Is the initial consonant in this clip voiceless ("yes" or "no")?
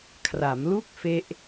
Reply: yes